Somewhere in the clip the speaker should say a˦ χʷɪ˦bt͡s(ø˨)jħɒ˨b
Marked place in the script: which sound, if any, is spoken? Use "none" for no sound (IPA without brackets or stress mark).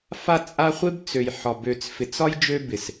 ø˨